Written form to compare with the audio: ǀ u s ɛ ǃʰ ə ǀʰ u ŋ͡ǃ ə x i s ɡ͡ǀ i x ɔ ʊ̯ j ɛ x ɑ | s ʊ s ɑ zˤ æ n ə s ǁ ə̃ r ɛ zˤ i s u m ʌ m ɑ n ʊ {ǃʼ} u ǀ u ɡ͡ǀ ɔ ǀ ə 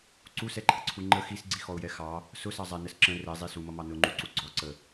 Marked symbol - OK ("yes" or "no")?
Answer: no